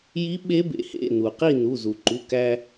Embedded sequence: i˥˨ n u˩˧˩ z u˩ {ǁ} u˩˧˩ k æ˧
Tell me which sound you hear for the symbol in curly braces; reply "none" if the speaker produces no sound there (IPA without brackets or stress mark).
ǃ